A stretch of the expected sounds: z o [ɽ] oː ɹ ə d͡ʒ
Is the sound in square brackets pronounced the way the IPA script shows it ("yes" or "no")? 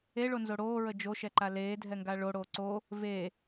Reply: yes